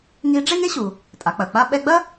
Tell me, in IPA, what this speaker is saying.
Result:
ŋ i˧˥ ɖ͡ʐ e˥ ŋ e˥ ɕ u˩ | tʼ a˩˧ k͡p ɐ˩ k͡p a˥ ɓ ɛ˧ ɡ͡b ɐ˥

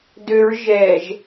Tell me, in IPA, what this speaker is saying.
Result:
d ø ɹ ʒ ɛ ʒ

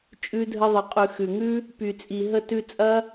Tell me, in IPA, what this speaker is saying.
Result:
t͡ʃʼ ʉ˧ dʱ ə˧ ðˤ ə˨ qʼ ʉ˨ x ʉ˨ ŋ ʉ˦ | p y˨ t͡sʼ i˨ ɦ ə˧ t ʉ˧ t͡sʼ ɐ˦

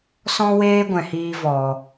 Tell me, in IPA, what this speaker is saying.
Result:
s ɔ̃˦ w eː˦ ɡʷ ɛ̃˨ h iː˧ v ɔ˨

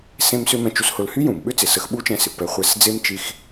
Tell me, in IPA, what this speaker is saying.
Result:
s ẽ˥ m s ʏ˥ m ɛ̃˧ t͡ʃ u˧ s h ʊ˧ l h y˥ j ũ˩ m ɓ ʏ˥ t͡s ɪ˩ s ə˧ x ɓ u˥ t͡ʃ ɛ̃˧ s ɪ˩ p ɛ˧ χʷ ɛ˧ s d͡z e˥ m t͡ʃ i˧ x

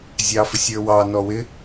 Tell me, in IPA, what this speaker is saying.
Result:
zʲ ɑ f ɪ sʲ ə˞ w ɑ n ɔ w ɪ

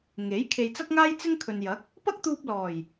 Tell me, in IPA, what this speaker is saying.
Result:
ŋ e˨˥ j kʰ e˨ j t͡s ɐ˥ k̚ ŋ aː˥ j t͡s ɪ˥ ŋ kʰ ɵ˨ n j ɐ˨˥ k̚ | p ɐ˥ k̚ t̪ uː˧ p̚ l ɔː˨˩ j

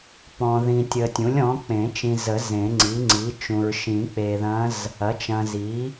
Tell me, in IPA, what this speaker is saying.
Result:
p ɔ̃˨ ð ĩ˨ tʲ ə˨ tʲ ũ˩˥ lʲ ɔ̃˩˥ k͡p ẽ˨˩˦ t͡ʃ ĩ˨ z ə˨˩˦ z ẽ˨˩˦ ŋ͡ǀ i˩˥ ŋ͡ǀ i˩˥ t͡ʃ ũ˨ ɹ ʃ ĩ˨˩˦ k͡p e˨ ð ɐ̃˧˥ z | ɐ˩˥ t͡ʃ ɐ̃˨ z i˩˥

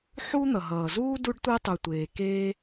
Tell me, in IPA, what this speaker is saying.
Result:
ħ u˦ n̪ ʌ˩ ɦ ʌː˩ z uː˥ d u˦ ɖ tʷ e˦ tˤ u˩ tʷ eː˩ k eː˦

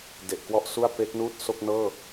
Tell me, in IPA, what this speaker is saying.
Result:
d e˨˩ ʔ k w ɔ˥˩ ʔ s u˥˩ a̯ p e˦˥ k̚ n uː˥˩ t̚ s o˥˩ k̚ n ɤː˥˩

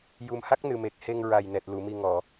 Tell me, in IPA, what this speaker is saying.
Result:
j u˨˩ m h a˦˥ k̚ n ɨ˨˩ m e˨˩ k̚ h e˧ ŋ ɹ a˨˩ j n ɛ˨˩ t̚ l u˨˩˨ m i˨˩ ŋ ɔ˨˩˨

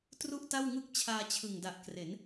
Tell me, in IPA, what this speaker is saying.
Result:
t r u˥˩ ʔ t a˥˩ w ŋ ɯ˥˩ k̚ t͡ɕʰ aː˧ t͡ɕʰ ɯ˨˩ ŋ d a˨˩ ʔ k r e˩˦ n

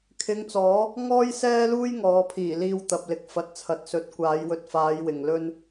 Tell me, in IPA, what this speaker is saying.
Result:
kʰ ɪ˨˧ ŋ t͡s ɔː˨˥ | ŋ ɔː˥ j s ɛː˥ l uː˥ j ŋ ɔː˨˧ pʰ iː˨˩ l iː˧ w t̪ ɐ˨ p̚ l ɪ˨ k̚ f ɐ˨ t̚ t͡sʰ ɐ˨ t̚ s ɵ˨˥ t̚ kʷ aː˨˧ j w ɵ˧ t̚ f aː˨˧ j w ɪ˨ ŋ l ɵ˥ n

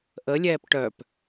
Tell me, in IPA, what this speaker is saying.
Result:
ʔ ə lʲ ɛː p ʈ œ p

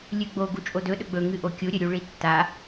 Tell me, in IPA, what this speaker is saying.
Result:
lʲ ʉ ɡ͡b o ɡ u t͡ʃʼ o d ɵ ɗ ɵ ɡ͡b ɵ ŋ ɨ ʔ o kʲ u ɾʲ ɵ ɾʲ u ɭ i tː a

